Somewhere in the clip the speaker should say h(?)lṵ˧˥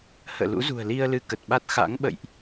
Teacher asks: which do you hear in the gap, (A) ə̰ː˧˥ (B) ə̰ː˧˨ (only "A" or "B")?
B